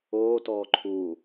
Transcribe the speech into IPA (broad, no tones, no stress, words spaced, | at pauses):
oːtɔː ǃʰu